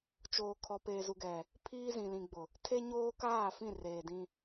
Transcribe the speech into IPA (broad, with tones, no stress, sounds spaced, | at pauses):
t͡ʃ oː˨ kʰ ɔ˨ p eː˨ z u˨ ɡ ɛ˨ | pʰ iː˦ z ĩ˨ l ĩ˨ ɡ͡b ʊ˨ | tʰ e˦ ɲ oː˦ k aː˦˨ f ĩ˦˨ r eː˨ d ĩ˦